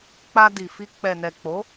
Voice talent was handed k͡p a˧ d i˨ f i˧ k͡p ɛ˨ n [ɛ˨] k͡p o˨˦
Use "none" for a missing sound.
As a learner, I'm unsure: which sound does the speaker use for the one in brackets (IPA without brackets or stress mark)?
ɛ˨